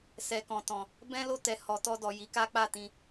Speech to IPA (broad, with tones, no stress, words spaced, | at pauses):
sɛ˨kɔ̃˨tɔ̃˨ | bɛ̃˦lo˦˨ tɛ˨ hɔ˨tɔ˧dɔ˨ ji˨˦ka˦ k͡pa˦˨tĩ˧